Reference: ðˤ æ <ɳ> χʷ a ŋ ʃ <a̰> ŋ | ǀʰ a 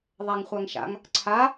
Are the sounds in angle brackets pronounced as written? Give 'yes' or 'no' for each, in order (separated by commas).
no, yes